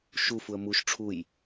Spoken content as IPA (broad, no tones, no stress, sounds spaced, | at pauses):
ʃ u f u ə̯ m u ʃ ʈ͡ʂʰ u j